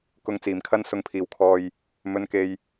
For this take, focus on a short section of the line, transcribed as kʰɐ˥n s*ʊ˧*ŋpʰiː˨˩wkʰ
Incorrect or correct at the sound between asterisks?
incorrect: ʊ˨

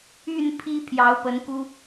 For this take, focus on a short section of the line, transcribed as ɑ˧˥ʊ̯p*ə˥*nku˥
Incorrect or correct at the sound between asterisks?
incorrect: ə˧˥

